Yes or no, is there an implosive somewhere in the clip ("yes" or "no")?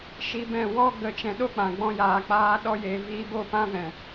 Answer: yes